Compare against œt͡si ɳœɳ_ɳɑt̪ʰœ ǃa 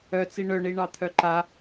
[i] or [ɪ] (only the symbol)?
i